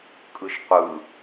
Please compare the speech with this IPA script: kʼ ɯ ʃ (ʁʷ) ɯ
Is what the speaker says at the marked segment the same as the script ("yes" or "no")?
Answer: no